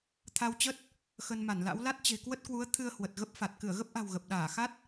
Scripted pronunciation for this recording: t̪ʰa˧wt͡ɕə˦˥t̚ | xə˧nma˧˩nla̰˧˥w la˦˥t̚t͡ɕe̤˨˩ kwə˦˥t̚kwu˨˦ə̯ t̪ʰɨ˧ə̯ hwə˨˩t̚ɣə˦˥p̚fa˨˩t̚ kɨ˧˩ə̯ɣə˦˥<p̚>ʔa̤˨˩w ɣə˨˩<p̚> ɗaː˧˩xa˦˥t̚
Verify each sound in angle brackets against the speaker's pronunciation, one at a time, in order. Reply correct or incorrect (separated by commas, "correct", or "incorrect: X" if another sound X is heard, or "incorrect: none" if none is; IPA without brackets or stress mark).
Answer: correct, correct